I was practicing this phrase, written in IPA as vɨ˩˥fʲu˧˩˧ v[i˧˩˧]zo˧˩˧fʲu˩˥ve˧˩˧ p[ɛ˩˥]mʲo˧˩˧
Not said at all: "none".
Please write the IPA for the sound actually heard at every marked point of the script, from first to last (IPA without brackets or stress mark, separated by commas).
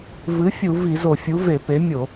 i˧˩˧, e˩˥